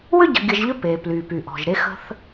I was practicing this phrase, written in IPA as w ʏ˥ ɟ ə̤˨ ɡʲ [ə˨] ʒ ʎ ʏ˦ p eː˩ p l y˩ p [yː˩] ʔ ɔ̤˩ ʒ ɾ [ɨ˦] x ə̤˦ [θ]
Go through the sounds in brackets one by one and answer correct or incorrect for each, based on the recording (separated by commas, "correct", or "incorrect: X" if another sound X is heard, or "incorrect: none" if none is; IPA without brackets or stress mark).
correct, incorrect: y˩, incorrect: e˦, correct